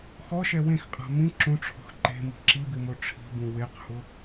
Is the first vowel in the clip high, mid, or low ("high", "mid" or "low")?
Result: mid